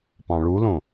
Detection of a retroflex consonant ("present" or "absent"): present